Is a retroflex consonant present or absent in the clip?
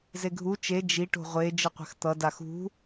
present